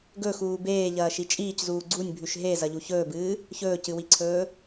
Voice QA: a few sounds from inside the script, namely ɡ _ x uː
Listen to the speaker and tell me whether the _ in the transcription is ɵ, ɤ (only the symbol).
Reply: ɵ